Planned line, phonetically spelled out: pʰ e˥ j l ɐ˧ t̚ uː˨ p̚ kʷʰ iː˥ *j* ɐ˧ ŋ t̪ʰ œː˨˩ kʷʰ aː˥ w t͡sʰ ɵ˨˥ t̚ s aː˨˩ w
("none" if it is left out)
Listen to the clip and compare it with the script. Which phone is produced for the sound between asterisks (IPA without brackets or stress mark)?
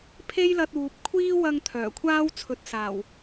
w